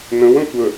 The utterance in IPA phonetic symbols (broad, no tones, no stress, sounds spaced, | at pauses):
n ə̃ w ə̃ tʷ ə